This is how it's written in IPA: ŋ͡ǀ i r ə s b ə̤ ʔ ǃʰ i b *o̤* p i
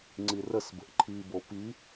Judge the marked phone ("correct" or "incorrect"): incorrect